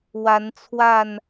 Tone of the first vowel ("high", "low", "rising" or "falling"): rising